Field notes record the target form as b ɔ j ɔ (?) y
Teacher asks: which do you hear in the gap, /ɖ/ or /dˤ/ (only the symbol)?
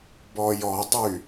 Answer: dˤ